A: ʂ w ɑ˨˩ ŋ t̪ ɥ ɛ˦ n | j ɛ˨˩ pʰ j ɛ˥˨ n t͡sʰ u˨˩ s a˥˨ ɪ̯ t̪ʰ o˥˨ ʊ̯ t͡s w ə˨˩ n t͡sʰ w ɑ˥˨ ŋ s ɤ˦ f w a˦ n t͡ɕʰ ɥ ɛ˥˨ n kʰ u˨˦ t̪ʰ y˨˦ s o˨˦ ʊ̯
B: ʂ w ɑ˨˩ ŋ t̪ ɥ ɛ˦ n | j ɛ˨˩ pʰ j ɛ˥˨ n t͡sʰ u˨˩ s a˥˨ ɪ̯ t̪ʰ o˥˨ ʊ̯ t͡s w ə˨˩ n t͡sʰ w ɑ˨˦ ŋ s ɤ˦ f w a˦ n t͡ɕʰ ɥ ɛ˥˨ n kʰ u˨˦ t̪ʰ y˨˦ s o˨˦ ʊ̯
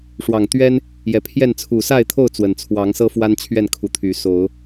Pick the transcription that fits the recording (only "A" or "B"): B